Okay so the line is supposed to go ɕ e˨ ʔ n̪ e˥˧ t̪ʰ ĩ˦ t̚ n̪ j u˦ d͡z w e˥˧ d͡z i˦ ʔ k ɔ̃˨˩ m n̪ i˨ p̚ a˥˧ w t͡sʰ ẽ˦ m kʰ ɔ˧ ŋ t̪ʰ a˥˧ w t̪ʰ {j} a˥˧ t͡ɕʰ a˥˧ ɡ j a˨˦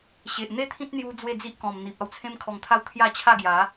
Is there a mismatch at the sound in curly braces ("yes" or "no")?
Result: no